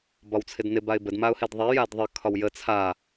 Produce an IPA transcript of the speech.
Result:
b ɒ w t͡sʰ ɪ d n ɪ b a ɪ̯ b ə d m a ʊ̯ h e d ðˤ ɛ j a d ðˤ ə kʰ ɒ w j ə t͡sʰ a

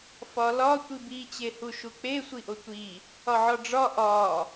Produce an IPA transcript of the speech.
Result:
f ɒ l ɒ tʷ i b i t͡ɕ e h u ʃ u k͡p e sʷ i ʔ o tʷ i | ɒ ʕ ɒ ɖ͡ʐ ɒ ʔ ɒ

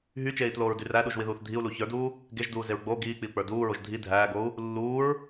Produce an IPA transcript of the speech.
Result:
ɦ y t͡ʃ eː i̯ t l oː ɹ d y r æ ɗ u ʒ w i ð uː θ dʱ i u̯ l u ç ə˞ d uː | ɡ e ʒ d uː z e ɹ ɡ͡b o ɡ iː k͡p i u̯ k͡p ə˞ d uː ɹ o ʒ dʱ i dʱ æː ɡ o u̯ | lː uː ɹ

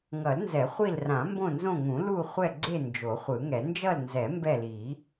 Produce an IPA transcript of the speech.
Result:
ŋ ʌ˨˩˦ l n z ɛ˨˩˦ χʷ i˦˨ l r ã˨˩˦ m b õ˦˨ n z õ˦˨ ŋ ũ˨˩˦ l u˦˨ χʷ ɛ˦˨ ɡ͡ǀ e˦˨ n d͡ʒ o˨˩˦ χʷ ɯ˨˩˦ ŋ ɛ˨˩˦ n d͡ʒ ʌ˦˨ l n z ɛ˨˩˦ m b ɛ˦˨ l i˨˩˦

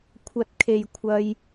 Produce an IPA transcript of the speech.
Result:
kʷʰ ɐ˨ t̚ kʰ e˨ j kʷʰ ɐ˧ j

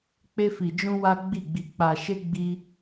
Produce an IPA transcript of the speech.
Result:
k͡p e˧ f i˨ d͡ʒ ũ˧ w a˦ ɡ͡b i˦˨ ɡ͡b i˧ k͡p a˨ ʃ e˧ ɡ͡b i˦

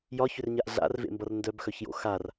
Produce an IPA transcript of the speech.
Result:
j ɒ ç ʏ r ɲ a ʔ ɮ a̰ r v ḛ m b ʌ r n d œ b x œ ç j o̰ x a r

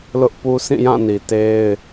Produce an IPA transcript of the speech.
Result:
l ʊ˦ ʔ p u˦ sʰ ĩ˦˨ j ã˦˨ n i˨ t e˦ ɪ̯

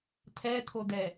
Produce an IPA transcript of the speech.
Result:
tʰ ɛ t̪ʰ o d ɛ

